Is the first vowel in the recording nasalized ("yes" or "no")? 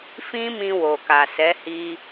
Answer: yes